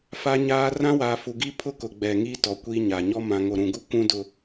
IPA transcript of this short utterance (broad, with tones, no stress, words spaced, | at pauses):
fa˦ɲaː˦ rã˦waː˨fu˨ɡi˦ pʰʊ˦kʊ˨ ɡ͡bɛ˨ŋiː˦ tɔ˨kʷiː˦ ɲa˨ɲɔ˦ mã˨ŋo˨ɾũ˨ɡu˦ kʷũ˦dʊ˨